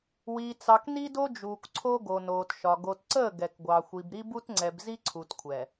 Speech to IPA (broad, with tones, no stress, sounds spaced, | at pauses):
w i˨ t͡s ɑ˨ k n i˦ d o˦ d͡ʒ uː˨ k ǀʰ o˦ ɡ o˨ n oː˨ t ʃ ɒ˨ ɡ o˨ t ǀ əː˦˨ ɡ ɛ˨ k ɡʷ ɑ˨ xʷ i˨ b ɾ i˦ b u˦ t ŋ͡ǀ ɛ˨ b z i˦ ǀʰ u˨ t kʷʰ ɛ˨